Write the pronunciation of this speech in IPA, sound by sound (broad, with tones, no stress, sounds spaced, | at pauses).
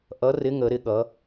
ʔ ʌ˨˥ r ɪ˨˥ ŋ ə˩˧ ɾ ɪ˩˧ ɠ ʌ˩˧